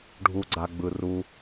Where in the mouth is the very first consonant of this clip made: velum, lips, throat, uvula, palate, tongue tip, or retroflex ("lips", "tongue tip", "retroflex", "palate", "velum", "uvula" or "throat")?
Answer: retroflex